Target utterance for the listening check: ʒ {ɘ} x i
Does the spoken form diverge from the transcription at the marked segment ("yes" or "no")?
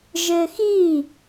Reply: no